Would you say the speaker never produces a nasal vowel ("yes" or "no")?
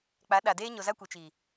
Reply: yes